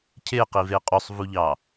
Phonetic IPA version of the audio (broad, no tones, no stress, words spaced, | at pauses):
cʰeqive qʼusˤvuʎɑː